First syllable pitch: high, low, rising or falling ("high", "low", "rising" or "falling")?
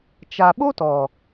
low